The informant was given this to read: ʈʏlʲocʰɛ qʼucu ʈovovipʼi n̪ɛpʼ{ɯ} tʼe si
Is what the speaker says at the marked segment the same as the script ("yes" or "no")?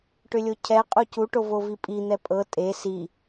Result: no